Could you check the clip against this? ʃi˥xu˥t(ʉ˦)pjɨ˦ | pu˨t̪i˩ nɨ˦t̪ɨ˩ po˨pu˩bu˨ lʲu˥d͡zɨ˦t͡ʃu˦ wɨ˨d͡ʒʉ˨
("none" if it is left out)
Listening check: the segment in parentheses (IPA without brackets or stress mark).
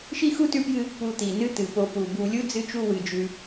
ʉ˦